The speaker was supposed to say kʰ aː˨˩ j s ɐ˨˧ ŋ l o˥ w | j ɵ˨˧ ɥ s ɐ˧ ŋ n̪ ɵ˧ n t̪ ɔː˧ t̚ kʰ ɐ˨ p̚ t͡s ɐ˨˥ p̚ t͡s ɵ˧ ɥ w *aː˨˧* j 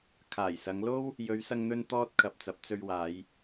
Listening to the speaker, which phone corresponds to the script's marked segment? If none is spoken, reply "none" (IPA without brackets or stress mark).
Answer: aː˨˧